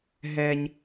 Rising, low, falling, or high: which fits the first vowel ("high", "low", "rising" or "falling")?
high